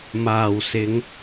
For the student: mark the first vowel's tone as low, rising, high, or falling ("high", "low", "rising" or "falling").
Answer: low